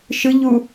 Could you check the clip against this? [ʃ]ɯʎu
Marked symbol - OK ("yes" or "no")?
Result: yes